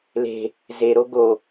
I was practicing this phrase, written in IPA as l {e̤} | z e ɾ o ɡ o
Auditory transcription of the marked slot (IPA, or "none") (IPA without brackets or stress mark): e̤